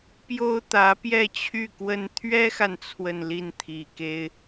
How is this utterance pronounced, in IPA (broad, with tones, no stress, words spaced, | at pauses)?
pjo˥ʊ̯t̪ä˧˥pjɛ˥˧t͡ɕʰy˥˩ kwə˥n t̪ʰɥɛ˥xa˨n t͡sʰwə˥˧n li˥˩n t̪ʰi˨˩ke˥ɪ̯